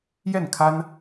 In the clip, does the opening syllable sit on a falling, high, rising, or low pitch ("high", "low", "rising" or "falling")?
falling